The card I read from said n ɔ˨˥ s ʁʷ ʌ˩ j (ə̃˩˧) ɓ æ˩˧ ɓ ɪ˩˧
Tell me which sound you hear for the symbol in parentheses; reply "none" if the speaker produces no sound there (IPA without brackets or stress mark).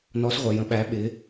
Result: ə̃˩˧